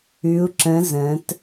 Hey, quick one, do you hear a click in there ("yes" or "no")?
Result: yes